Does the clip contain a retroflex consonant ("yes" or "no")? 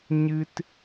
no